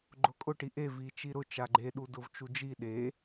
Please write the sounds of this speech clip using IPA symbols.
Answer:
ɡ͡ǃ ʊ kʼ ʊ ʈ i ʔ e v i t͡ʃ i ɾ ʊ t͡ʃ a ɡ͡ǃ e ɗ u d ʊ v t͡ʃ u d͡ʒ i ɗ e

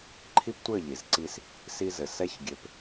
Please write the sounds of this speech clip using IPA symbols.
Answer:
ǃʰ i˦ p tʷ ɘ˦˨ ʎ i˨ z ǀ i˧ s | s i˧ z ɘ˨ s ɛ˦ ç ɡʲ ø˧ p

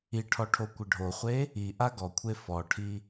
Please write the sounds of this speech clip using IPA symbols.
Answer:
i ʈʰ ɔ ʈʰ o kʷ ɪ ɖʱ o χʷ e | i ʔ a ɡ ɔ kʷʰ e f ɔ ʈʰ i

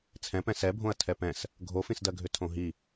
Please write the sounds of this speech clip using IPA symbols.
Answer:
t͡sʰ ɛ̃ p ɛ̃ s ɛ bʱ õ ɐ̯ tʰ ɛ p ɛ̃ s | ɡʱ o f ĩ s d ɜ ɡʱ ʏ tʰ õ ɦ i

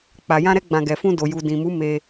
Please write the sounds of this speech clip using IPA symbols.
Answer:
k͡p a˨ j ã˧ ɾ ɛ˧ ɡ͡b ã˨ ɡ ɛ˨ f ũ˧ d o˨ j u˨ d ĩ˨ m u˨˦ m e˧

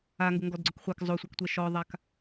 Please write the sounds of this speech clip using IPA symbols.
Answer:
a ŋ ɡ ʊ ŋ ɡ ɔ d ɡ͡ǀ ʊ k χʷ ɛ k zˤ o sʷ ɛ k tʷ ɛ ʃ ɔ ðˤ a k

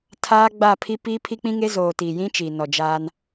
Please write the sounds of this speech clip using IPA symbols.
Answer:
tʰ aː˦ ɡ͡b aː˦˨ pʰ i˦ p iː˦ pʰ i˦ k͡p ĩ˦ ŋ e˦ z oː˨ t i˨ j ĩ˦ t͡ʃ i˨ n ɔ˨ d͡ʒ aː˦ n

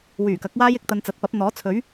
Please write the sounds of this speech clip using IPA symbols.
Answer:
w yː˨˩ k ɐ˨˥ k̚ w aː˥ j ɪ˨˥ k̚ t̪ ɐ˧ n t͡s ɐ˨˥ t̚ p ɐ˨˥ p̚ n̪ ɔː˨˥ t͡sʰ ɵ˨˥ ɥ

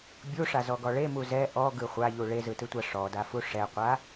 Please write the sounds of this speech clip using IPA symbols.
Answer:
bʲ u ʂ a z ɔ ɡ ɔ ɭ e m u z ɛ ʔ ɔ ɡ ɯ χʷ a ʎ u ɭ e z ɯ t ɯ tʷ a ʂ ɔ d a f u ʂ ɛ qʷ a

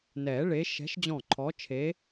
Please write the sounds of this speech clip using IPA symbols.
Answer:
n ɛː˨˩˦ ɭ e˨˦ ʃ ɛ̤˨˦ ʃ d͡ʑ ɔ̃˧˩ ǃʰ ɔ˨˦ t͡ʃʰ e˨˦

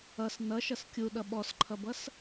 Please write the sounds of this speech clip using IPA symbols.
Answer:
ʌ s n ʌ ʃ ʌ s kʲ u ɗ ʌ ɓ ɔ s ǃʰ ʌ b ʌ s

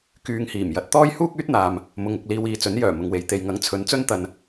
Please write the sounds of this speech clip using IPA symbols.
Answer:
k yː˨ ŋ h iː˨˩ m j ɐ˨˥ t̚ t̪ ɔː˥ j h uː˥ k̚ yː˥ t̚ n̪ aː˨ m | m ʊ˨ ŋ ʊ˨ k̚ l iː˧ w iː˨ t͡s ɵ˨˥ n j œː˨˩ m ʊ˨ ŋ w e˨ j t̪ e˨ j ŋ ɐ˨˥ ŋ t͡sʰ ɵ˨˧ n t͡s ɵ˥ n t̪ ɐ˧ n

